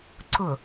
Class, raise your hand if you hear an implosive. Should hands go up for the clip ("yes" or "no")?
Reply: no